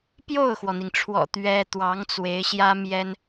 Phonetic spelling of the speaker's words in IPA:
p j o˥˩ ʊ̯ x w ɔ˩ n̪ i˩ ŋ ʈ͡ʂʰ w ɔ̰˨˩ t̪ ɥ ɛ˥ t̪ w ɑ˧˥ ŋ t͡s w e˧˥ ɪ̯ ɕ j ä˥ m j ɛ˥ n

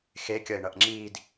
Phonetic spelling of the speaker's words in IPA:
x e kʲ ʌ ɪ̯ ɳ ʌ ʔ ŋ͡ǁ iː d

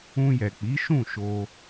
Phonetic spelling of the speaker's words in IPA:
ũ˧ j ɛ˨ k͡p i˨˦ ʃ ũ˦˨ ʃ o˧

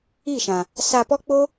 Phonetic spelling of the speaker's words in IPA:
i˦˨ ʃ ã˨ | s a˧ p ɔ˦ k͡p o˦

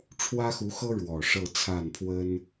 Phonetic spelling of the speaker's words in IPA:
ʈ͡ʂʰ w ä˥ x u˧˥ x ɤ˥ ɻ w ɔ˨˩ ʂ ɤ˥˧ t͡sʰ a˥˩ n pʰ w ə˥ n

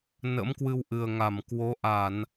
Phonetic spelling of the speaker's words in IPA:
n ə̰˧˥ m k w ɨ˧ w ʔ ɨ˨˩ ə̯ ŋ a˧˩ m k w o˨˦ ʔ a˧˩˨ n

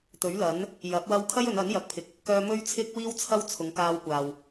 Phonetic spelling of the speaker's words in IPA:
t̪ ɵ˨˥ ɥ l ɐ˨˥ n | j ɐ˨˥ p̚ w ɐ˧ w kʰ ɐ˥ j ɵ˨˧ n ɐ˨˥ n j ɐ˨˥ k̚ pʰ ɪ˨˥ k̚ | k œː˧ m ɵ˥ ɥ t͡sʰ ɪ˥ k̚ w iː˥ w t͡sʰ ɐ˥ w t͡sʰ ʊ˨˧ ŋ k aː˧ w kʷ aː˨ w

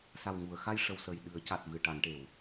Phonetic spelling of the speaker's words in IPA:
s a˨˩ w ŋ u˨˩˨ ə̯ x a˧ j ʂ ə˨˩ w s ə˨˩ j ɗ ɨ˨˩˦ ə̯ c a˨˩ t̚ v ɨ˨˩ ʈ a˨˩˨ n ʈ e˨˩˨ w

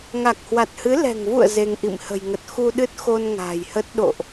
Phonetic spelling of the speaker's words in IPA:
ŋ a˨˩ k̚ h w a˨˩ t̚ h ɨ˨˦ l ɛ̤˨˩ ŋ v ṵ˧˨ ə̯ z e˧ ŋ ʔ ḭ˧˨ m h ə̤˨˩ j ŋ ə˨˩ t̚ x u˧ ɗ ɨ˦˥ t̚ x o˧ n ŋ a̤ː˨˩ j h ə˦˥ t̚ ɗ o̰˧˨ ʔ

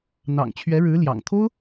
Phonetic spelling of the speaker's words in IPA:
n̪ ɑ̰˨˩ ŋ t͡ɕʰ ɥ ɛ˧˥ ɻ ɻ̩˧˥ l j ɑ̰˨˩ ŋ t̪ʰ o˥ ʊ̯

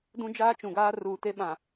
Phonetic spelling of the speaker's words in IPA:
d ũ˦ d͡ʒ aː˦ t͡ʃ ũ˨ ɡ aː˦ r uː˨ t e˦ ɓ ã˨

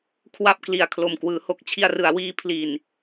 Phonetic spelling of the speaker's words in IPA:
kʰ w a˥˩ p̚ k l i˨˩ a̯ kʰ l o˨˩ m k w ɯː˩˦ h o˨˩ k̚ t͡ɕʰ i˧ a̯ r ɯ˩˦ a̯ w iː˦˥ pʰ l i˨˩ n

